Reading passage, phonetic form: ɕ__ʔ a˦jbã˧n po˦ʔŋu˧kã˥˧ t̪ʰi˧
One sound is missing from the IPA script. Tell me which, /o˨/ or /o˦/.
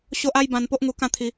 o˦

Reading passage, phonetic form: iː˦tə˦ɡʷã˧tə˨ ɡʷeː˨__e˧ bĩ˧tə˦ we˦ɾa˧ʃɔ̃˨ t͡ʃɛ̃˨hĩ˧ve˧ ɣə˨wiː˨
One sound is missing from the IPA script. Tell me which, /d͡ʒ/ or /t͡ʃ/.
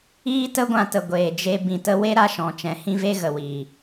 d͡ʒ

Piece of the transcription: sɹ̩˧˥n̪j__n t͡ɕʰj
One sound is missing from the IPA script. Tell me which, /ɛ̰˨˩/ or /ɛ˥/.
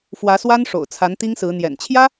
ɛ̰˨˩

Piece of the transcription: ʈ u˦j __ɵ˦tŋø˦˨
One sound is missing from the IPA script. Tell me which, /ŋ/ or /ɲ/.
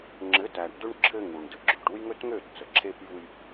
ŋ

